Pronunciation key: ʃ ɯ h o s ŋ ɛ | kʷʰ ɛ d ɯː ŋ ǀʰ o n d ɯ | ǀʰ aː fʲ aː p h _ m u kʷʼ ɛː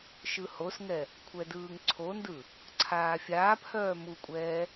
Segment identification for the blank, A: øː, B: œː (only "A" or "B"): B